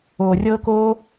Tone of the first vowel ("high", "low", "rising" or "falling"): low